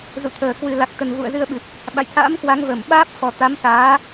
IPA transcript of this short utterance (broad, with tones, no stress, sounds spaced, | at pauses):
z ṵ˧˨ t̪ʰ əː˨˩ k w ɨ˨˩ l a˨˩ k̚ t̪ ə˨˩ n v ṵ˧˨ ə̯ z ɨ˧ ə̯ ɓ ɨ˨˩ p̚ | ɓ a̰˧˨ j t̪ʰ a̰ː˧˥ m k w a˨˦ ŋ v ə˧˩ m ɓ aː˦˥ p̚ f ɔ˨˩ t̪ a˨˦ m s aː˨˦